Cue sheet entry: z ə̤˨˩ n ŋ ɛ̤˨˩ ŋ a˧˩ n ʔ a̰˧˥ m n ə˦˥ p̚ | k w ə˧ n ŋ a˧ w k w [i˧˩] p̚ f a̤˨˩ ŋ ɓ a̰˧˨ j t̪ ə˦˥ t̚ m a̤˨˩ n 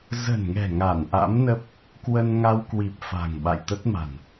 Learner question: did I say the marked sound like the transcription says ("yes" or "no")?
no